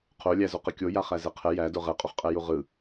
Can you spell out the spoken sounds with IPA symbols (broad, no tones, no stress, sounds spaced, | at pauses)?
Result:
qʰ o lʲ æ z o q ə kʲ o j a χ æ z ɛ qʰ ɛ j æ d o ʁ ɛ qʼ o χ qʼ ɛ j u ʁ ɯ